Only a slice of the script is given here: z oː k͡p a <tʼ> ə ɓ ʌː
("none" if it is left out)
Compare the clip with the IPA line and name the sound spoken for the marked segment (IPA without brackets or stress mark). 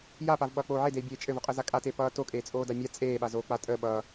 tʼ